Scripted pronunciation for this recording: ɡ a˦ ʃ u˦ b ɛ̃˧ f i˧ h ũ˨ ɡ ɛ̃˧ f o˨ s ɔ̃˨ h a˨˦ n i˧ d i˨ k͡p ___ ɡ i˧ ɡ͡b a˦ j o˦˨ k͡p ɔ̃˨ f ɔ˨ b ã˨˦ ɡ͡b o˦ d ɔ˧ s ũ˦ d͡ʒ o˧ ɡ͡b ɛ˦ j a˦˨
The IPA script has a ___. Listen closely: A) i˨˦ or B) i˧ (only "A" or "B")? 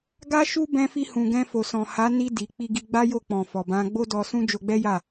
B